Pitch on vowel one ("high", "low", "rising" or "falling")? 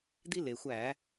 high